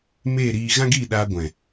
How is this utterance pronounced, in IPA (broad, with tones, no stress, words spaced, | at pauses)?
meː˦˨ɾiː˧ ɣã˦ɡiː˦˨ɗaː˧ ɡʷɛ̃˨